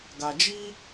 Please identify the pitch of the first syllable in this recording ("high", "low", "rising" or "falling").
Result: low